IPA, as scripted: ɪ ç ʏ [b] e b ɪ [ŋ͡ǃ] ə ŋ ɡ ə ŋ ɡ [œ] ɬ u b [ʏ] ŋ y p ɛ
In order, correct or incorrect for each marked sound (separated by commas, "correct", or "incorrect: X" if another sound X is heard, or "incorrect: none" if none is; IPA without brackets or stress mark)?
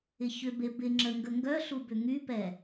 correct, incorrect: ŋ͡ǁ, correct, correct